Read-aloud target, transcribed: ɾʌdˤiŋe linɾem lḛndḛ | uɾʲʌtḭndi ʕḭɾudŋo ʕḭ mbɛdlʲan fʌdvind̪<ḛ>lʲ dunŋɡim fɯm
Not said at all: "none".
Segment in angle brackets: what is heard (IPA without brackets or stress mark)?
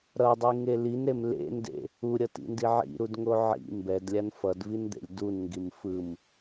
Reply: ḛ